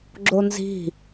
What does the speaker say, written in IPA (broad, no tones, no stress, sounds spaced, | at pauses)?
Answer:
ɡ͡ǁ o n z i̤